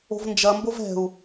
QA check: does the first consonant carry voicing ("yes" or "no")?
yes